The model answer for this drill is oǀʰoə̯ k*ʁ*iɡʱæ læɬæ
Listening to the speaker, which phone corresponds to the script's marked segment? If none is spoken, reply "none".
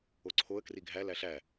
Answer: r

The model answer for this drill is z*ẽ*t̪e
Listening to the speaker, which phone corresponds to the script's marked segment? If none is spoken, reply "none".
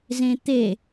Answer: ẽ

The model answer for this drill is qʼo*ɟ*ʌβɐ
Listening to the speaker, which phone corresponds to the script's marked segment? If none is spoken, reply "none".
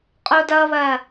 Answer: d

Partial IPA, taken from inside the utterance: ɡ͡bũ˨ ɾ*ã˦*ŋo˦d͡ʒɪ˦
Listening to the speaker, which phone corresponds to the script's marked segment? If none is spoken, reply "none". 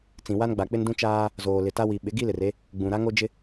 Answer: a˦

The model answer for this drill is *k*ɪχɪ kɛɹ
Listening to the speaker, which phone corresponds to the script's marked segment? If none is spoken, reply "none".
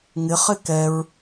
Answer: ŋ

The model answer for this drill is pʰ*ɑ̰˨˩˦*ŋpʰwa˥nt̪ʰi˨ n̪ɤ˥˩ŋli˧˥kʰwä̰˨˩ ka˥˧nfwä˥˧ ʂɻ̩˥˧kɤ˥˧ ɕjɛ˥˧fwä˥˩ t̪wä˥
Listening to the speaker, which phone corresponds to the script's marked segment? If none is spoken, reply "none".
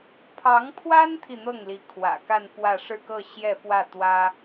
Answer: ɑ˧˥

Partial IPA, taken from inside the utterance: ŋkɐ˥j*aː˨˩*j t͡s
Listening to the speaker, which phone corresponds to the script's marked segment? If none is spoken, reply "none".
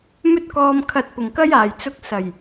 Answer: aː˨˩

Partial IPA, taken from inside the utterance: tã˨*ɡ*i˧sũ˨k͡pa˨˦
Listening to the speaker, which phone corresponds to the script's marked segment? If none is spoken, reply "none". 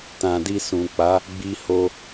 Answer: d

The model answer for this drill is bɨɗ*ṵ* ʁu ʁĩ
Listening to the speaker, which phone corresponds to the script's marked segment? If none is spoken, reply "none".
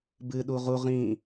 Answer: u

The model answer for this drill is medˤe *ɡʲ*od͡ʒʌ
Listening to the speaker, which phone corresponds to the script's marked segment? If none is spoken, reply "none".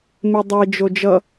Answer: d͡ʒ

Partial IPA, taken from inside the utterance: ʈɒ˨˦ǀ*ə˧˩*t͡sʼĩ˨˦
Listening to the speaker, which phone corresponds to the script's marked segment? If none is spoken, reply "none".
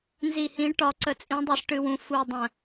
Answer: ə˨˦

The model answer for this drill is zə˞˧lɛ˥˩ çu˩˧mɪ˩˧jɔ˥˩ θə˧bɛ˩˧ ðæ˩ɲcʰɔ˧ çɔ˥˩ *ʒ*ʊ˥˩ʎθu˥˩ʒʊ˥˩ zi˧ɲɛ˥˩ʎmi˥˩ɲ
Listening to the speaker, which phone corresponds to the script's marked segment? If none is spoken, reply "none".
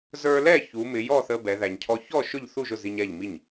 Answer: ʃ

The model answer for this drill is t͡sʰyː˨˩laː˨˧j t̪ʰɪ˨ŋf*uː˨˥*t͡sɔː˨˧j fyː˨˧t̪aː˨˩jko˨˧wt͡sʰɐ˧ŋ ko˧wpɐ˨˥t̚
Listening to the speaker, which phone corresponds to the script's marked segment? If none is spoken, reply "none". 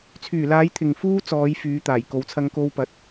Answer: uː˥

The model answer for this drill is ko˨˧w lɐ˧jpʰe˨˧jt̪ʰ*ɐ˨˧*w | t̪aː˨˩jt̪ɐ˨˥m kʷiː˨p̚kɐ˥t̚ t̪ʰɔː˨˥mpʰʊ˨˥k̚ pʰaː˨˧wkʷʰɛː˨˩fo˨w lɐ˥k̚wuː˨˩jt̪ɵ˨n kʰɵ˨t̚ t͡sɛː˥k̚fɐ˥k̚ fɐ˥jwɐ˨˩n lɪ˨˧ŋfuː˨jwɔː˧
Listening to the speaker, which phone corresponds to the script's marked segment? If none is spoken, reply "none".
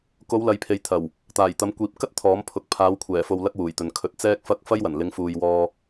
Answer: ɐ˨˩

